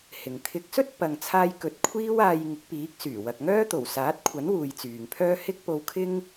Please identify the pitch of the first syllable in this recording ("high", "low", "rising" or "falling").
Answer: low